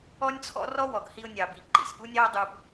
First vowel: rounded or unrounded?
rounded